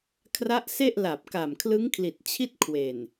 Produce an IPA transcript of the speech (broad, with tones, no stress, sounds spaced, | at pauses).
kʰ r a˦˥ ʔ s e˥˩ ʔ l a˨˩ p̚ k a˨˩ m kʰ l ɯ˦˥ ŋ kʰ l i˨˩ t̚ t͡ɕʰ i˥˩ t̚ kʰ w e˨˩ n